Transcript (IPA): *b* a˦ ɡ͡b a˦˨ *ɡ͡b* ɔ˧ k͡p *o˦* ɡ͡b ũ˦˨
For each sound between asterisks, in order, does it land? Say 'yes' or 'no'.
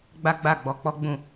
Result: no, yes, no

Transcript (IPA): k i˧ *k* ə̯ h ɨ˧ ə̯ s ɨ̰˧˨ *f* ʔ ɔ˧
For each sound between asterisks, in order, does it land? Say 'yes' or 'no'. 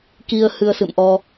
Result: no, no

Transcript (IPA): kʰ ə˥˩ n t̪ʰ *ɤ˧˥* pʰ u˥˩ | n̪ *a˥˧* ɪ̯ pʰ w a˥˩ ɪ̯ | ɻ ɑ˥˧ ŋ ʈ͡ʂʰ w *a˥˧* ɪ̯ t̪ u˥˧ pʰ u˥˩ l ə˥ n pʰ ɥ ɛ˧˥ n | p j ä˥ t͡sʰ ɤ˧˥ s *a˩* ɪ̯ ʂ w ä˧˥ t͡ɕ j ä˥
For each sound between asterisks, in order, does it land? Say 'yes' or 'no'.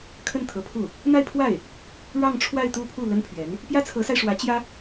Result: yes, yes, yes, no

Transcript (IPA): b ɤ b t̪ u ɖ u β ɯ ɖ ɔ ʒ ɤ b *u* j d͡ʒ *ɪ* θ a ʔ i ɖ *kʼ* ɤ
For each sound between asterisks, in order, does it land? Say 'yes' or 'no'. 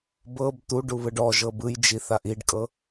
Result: no, no, yes

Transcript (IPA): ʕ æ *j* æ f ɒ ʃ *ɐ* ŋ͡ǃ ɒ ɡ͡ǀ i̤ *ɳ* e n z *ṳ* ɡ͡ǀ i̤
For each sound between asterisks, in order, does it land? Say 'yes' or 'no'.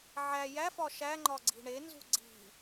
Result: yes, no, yes, yes

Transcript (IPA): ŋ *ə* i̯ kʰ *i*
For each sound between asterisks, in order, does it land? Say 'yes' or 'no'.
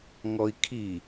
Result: no, yes

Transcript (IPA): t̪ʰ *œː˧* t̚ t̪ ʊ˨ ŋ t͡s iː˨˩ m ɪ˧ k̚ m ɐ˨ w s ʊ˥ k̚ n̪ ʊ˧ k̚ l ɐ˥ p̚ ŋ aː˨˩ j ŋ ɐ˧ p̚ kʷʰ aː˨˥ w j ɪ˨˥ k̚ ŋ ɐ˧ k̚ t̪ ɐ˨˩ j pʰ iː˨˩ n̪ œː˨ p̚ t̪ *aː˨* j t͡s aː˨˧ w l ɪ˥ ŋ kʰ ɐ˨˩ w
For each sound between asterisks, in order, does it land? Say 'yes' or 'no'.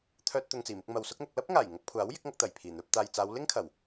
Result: yes, yes

